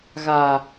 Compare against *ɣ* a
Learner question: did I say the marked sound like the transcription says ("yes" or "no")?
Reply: yes